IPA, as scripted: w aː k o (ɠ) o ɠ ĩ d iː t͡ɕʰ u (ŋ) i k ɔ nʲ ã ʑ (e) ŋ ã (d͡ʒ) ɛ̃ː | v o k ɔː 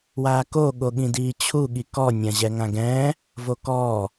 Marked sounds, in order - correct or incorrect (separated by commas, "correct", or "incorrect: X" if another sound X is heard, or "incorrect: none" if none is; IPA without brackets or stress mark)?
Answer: correct, incorrect: ɠ, incorrect: ɛ, incorrect: ɡ